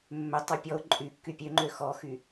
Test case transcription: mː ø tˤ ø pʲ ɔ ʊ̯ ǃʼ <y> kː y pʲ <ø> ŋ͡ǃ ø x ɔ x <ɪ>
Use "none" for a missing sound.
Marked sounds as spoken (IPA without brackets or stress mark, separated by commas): y, ø, y